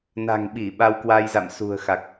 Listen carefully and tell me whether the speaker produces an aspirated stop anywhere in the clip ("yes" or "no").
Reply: no